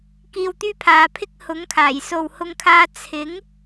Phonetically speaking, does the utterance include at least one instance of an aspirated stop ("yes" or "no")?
yes